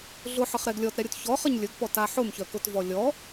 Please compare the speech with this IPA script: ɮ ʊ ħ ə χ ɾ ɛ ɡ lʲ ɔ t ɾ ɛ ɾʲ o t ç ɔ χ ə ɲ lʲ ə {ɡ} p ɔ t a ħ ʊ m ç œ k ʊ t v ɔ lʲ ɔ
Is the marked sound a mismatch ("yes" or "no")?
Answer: no